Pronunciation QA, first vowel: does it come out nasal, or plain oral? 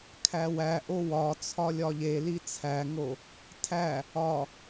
oral